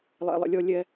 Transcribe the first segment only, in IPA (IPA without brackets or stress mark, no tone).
lˠ